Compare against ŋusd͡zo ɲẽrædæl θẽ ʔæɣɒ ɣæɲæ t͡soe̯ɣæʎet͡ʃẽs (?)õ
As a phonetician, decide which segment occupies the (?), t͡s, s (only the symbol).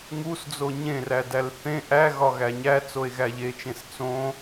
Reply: t͡s